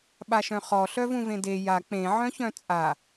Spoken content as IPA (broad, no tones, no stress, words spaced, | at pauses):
ɓaʃœ̃χɔ ɬœvũvẽde ja k͡pẽ ʕœ̃çœ̃t͡sʼa